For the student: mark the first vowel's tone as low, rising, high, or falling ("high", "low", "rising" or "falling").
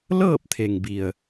falling